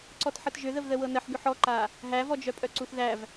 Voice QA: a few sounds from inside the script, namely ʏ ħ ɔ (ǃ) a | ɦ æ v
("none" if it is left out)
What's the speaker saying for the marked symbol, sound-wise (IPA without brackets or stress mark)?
ǃ